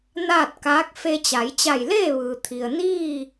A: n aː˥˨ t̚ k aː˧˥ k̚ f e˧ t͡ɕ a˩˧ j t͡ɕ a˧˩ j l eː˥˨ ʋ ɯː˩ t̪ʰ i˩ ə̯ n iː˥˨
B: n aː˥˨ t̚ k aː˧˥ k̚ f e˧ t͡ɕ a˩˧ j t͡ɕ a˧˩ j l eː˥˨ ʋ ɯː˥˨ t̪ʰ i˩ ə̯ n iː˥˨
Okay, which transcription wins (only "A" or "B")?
A